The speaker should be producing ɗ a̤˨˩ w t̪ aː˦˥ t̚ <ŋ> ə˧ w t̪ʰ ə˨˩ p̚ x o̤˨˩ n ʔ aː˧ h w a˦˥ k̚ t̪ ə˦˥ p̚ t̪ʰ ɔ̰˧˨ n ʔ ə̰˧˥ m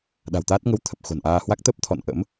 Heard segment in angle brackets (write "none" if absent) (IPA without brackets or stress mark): ŋ